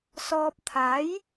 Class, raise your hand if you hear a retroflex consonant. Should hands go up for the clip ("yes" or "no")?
no